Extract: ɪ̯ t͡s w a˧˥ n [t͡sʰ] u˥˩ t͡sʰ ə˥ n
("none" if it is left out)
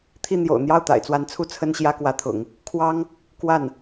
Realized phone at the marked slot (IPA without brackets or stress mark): t͡sʰ